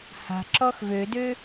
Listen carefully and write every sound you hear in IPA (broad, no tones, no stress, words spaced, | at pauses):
ha̤ǁɔx vødø